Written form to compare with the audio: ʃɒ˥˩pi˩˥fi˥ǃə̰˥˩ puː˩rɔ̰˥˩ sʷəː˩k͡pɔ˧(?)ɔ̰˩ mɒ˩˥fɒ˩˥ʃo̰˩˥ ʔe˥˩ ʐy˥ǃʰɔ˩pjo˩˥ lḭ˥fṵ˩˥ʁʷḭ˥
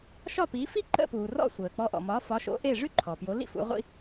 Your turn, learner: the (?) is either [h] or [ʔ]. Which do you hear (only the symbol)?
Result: ʔ